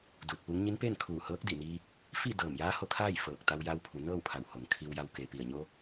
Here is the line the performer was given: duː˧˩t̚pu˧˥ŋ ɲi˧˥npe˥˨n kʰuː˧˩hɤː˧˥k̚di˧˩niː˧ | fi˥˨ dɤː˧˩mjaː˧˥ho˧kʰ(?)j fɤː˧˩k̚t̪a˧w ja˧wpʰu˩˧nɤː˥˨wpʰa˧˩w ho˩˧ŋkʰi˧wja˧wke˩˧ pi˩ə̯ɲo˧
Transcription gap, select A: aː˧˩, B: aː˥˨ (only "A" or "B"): B